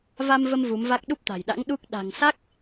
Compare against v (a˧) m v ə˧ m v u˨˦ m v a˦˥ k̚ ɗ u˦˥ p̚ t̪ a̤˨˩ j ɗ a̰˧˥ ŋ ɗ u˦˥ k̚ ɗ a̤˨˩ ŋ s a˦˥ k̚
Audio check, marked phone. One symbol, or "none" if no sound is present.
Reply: a˧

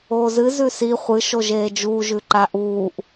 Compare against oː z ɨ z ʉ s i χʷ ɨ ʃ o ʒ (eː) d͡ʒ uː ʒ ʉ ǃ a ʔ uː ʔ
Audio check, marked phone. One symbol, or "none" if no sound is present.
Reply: eː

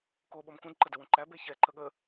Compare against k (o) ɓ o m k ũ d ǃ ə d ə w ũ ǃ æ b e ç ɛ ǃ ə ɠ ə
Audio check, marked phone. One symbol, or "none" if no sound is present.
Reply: o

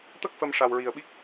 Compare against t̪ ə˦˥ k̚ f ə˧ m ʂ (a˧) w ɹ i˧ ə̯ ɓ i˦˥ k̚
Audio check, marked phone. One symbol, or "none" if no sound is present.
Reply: a˧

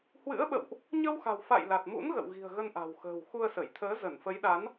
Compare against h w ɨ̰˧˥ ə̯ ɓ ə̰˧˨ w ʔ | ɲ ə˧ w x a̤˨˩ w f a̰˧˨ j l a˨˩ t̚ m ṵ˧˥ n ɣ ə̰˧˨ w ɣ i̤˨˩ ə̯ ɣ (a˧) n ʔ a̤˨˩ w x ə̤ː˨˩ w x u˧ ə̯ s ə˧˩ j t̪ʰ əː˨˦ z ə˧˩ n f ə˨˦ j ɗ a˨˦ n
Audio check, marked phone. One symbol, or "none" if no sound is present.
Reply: ə˧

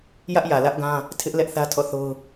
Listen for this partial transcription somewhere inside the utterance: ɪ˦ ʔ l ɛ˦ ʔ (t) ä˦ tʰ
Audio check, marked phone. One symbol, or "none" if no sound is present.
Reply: θ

